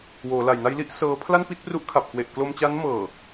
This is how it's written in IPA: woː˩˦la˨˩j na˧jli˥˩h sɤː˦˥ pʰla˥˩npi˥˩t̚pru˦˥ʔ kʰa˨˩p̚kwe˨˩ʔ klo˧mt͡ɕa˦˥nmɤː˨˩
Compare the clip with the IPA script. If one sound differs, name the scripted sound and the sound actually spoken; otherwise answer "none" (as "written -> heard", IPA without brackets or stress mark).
h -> ʔ